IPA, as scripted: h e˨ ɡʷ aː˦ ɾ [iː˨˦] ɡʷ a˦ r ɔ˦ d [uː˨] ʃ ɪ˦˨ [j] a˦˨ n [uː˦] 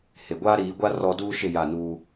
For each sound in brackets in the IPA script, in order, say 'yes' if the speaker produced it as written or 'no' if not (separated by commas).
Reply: yes, no, yes, yes